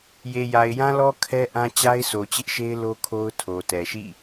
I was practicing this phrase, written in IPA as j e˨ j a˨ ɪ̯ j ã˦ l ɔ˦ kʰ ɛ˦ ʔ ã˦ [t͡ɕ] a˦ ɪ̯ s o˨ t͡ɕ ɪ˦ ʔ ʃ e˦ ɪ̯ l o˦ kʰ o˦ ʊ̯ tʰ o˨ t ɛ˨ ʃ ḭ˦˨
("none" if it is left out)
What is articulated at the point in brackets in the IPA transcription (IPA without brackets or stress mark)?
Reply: t͡ɕ